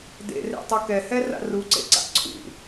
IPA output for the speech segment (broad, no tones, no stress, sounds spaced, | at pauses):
d ḛ r ḛ tˤ ʌ k ɛ h ɛ r a̰ r u ǀ ḛ ǀ a̰ ǀʰ ṵ